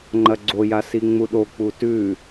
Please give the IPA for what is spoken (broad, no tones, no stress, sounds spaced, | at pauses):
ŋ͡ǃ ɐ ɡ͡ǀ o j a s i ŋ͡m u ɗ o k͡p u t ʉ